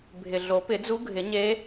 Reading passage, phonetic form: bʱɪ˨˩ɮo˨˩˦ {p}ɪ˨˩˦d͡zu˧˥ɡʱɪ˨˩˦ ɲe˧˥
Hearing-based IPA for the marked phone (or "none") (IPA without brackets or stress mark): p